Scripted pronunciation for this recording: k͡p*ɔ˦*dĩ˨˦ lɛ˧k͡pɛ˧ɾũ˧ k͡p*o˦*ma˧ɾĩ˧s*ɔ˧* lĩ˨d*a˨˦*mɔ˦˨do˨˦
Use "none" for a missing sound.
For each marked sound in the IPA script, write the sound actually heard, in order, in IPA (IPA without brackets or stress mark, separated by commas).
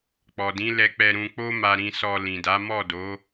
ɔ˨, o˦, ɔ˧, a˨˦